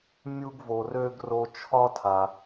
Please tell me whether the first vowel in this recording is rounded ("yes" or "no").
yes